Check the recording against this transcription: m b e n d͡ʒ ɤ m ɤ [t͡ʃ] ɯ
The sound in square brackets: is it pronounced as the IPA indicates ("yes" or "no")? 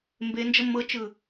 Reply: yes